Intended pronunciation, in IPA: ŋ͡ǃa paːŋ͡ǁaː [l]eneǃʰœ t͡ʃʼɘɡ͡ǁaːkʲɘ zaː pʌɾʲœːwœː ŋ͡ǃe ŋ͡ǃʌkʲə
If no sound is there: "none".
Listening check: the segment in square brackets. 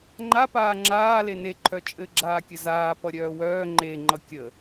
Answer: l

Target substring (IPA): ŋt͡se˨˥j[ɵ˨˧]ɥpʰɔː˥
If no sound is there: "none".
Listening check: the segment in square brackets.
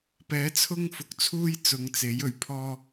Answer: ɵ˨˩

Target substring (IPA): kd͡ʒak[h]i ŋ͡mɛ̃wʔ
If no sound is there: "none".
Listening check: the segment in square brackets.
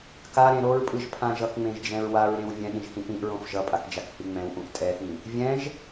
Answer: h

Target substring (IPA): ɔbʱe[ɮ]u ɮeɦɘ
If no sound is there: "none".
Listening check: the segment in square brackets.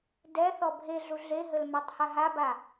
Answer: ɮ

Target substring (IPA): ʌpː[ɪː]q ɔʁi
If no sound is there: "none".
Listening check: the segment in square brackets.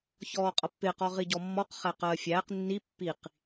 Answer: ɪː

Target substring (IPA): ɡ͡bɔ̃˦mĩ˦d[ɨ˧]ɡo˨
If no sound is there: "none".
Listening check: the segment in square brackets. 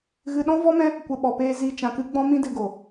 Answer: ɨ˧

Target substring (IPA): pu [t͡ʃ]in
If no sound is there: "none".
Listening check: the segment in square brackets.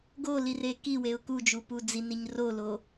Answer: d͡z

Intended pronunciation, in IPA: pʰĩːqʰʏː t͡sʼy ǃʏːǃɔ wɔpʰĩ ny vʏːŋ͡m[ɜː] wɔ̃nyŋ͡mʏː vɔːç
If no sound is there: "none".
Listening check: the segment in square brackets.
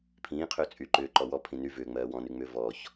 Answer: ɜː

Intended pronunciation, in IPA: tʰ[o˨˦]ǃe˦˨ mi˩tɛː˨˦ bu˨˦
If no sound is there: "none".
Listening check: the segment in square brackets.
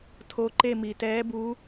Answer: o˨˦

